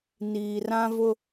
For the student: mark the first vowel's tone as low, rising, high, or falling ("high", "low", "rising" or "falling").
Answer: low